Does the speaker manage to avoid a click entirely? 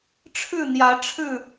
yes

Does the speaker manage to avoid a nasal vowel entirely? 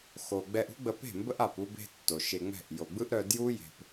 yes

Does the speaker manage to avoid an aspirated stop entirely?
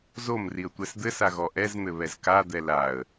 yes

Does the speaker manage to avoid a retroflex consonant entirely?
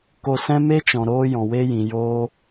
yes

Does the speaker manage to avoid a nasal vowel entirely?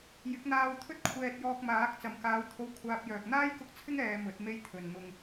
yes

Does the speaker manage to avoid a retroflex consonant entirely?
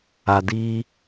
yes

